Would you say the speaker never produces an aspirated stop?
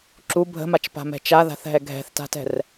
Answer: yes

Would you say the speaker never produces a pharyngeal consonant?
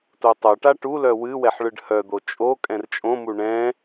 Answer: no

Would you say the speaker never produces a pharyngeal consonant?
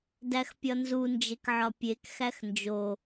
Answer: no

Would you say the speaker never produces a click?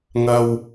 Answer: yes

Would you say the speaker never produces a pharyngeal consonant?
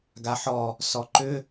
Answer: no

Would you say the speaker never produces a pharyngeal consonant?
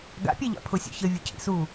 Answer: yes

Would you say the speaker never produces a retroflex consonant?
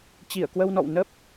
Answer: yes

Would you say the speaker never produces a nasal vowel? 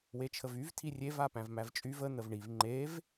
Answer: no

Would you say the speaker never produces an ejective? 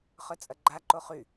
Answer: no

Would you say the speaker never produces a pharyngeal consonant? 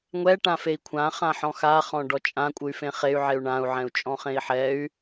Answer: no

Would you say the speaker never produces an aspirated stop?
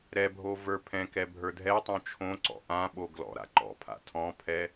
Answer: no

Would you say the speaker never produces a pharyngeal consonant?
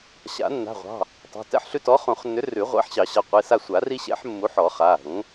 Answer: no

